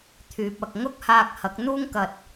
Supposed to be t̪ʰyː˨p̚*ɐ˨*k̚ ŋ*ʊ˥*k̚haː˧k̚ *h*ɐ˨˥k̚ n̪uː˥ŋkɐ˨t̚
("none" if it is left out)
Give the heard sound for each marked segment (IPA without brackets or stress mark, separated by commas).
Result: ɐ˨, ʊ˥, h